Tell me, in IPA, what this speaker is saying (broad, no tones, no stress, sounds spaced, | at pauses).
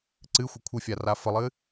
ǀ ɨ xʷ ə kʷʰ ɨ fʲ a r a f ə lˠ ɨ